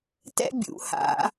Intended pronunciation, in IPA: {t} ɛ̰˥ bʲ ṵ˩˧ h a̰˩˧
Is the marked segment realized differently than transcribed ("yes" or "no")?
no